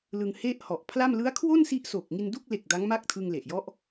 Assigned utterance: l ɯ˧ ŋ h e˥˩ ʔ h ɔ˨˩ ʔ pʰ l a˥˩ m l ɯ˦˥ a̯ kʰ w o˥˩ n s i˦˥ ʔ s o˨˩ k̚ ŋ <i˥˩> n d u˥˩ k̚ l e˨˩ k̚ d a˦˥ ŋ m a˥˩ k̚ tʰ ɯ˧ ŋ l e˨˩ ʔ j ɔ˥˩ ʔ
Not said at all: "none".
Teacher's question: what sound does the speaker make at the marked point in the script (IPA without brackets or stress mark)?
i˧